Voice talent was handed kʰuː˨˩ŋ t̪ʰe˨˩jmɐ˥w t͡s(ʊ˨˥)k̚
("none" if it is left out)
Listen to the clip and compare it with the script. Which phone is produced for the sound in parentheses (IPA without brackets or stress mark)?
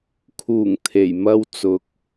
ʊ˨˥